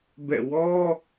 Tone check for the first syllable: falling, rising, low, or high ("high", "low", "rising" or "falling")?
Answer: falling